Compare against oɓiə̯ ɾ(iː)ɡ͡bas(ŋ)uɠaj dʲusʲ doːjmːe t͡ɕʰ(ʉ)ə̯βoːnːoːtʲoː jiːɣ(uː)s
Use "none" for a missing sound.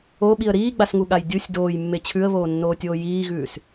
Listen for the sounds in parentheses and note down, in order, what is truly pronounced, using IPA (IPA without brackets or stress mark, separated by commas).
iː, ŋ, ʉ, ʉː